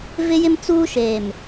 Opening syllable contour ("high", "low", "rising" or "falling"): high